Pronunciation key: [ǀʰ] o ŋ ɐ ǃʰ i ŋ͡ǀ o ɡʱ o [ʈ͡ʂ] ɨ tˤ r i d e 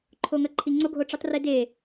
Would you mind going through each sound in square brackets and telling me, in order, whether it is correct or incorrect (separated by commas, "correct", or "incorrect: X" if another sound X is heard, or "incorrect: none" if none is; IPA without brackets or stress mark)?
incorrect: ǃʰ, correct